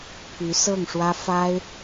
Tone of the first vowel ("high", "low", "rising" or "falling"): rising